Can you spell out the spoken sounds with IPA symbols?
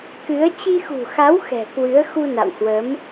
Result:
kɨ˨˦ə̯ t͡ɕi˧xṳ˨˩xa˨˦w xɛ̤˨˩kwɨ˨˦ə̯ xu˧na̰˧˨whwə˨˦m

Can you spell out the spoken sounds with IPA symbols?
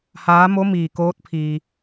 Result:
haː˧˥mo˧˥ miː˩ koː˧˥t̚pʰiː˩

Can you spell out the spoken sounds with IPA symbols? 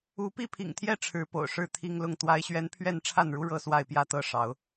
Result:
u˨˦pi˥˨pʰḭ˨˩ŋt̪ʰjɛ˥˨ ʈ͡ʂʰɻ̩˨˦po̰˨˩ʊ̯ʂɻ̩˥˨ t̪ʰi˦ŋlʊ˥˨ŋ t̪wa˦ɪ̯ɕɥɛ˦n pʰɥɛ˥˨nʈ͡ʂʰa˥˨nɻu˦ ɻɤ˦swa˥˨ɪ̯pjä˥˨ t̪ɤ˥˨ʂɑ˨˦ʊ̯

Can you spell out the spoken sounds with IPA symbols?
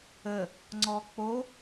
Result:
ə | ŋ͡ǀɔk͡po

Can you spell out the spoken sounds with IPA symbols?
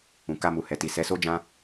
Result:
ũ˨ka˧mu˨ hɛ˨ti˨ sɛ˨˦so˦d͡ʒã˦

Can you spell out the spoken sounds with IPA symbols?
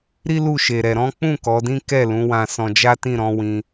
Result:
ɾi˦ lu˦˨ʃe˨ɾɛ˨ ɾɔ̃˨˦k͡pũ˦˨ kɔ˨˦dĩ˦ kɛ˦˨lũ˨˦wã˧ sɔ̃˧d͡ʒa˦tĩ˦˨ ɾɔ̃˨˦wĩ˧

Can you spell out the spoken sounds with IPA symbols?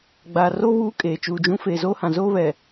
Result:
ɡ͡baː˨ro˦ βuː˦kʼeː˨ t͡ʃuː˨d͡ʒũ˦ feː˨zoː˦hã˨ zoː˦βɛ˨

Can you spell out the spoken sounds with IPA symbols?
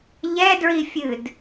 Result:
ʎɛdɹifʲɨd

